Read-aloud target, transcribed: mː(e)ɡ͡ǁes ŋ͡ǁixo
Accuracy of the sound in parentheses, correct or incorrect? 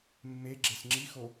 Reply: correct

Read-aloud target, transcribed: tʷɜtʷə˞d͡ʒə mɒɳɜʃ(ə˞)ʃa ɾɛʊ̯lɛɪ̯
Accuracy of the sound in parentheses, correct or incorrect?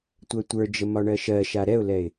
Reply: incorrect: ɜ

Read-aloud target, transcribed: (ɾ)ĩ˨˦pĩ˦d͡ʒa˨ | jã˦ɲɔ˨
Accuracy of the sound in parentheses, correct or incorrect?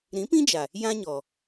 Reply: correct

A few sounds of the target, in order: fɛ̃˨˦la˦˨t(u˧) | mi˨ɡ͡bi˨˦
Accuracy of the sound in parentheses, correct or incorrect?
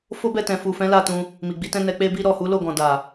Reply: incorrect: ũ˧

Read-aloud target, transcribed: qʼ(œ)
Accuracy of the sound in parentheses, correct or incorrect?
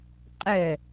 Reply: correct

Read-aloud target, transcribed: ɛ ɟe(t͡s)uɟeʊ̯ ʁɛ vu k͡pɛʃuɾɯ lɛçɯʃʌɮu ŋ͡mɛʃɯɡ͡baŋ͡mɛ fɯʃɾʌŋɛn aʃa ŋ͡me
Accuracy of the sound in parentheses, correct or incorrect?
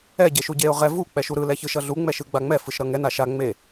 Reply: incorrect: ʃ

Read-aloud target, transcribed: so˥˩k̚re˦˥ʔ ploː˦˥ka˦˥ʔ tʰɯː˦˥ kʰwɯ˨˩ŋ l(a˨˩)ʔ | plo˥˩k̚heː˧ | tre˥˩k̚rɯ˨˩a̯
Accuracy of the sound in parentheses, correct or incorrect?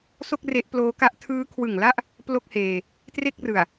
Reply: incorrect: a˥˩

